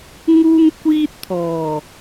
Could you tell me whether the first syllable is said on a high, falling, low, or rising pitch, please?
high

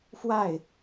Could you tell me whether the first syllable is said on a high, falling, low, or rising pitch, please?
falling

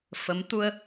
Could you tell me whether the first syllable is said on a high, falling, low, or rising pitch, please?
rising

